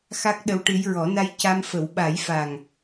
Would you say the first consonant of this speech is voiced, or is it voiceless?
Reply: voiceless